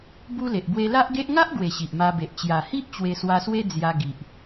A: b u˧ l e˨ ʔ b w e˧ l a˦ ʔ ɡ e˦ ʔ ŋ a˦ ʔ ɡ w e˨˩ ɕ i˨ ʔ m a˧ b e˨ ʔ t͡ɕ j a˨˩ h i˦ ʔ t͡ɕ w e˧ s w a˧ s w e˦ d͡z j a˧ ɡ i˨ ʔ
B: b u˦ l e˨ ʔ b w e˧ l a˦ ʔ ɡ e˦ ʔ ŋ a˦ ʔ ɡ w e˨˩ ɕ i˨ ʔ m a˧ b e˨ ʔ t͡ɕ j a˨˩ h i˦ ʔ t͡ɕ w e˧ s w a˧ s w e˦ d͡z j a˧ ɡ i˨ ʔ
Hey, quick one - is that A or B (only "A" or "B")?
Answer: B